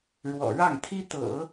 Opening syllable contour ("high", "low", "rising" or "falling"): low